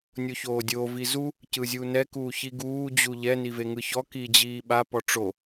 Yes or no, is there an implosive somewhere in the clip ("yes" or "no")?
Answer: yes